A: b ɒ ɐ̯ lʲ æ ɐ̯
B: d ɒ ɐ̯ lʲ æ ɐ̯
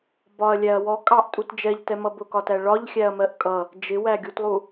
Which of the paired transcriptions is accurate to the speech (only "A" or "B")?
A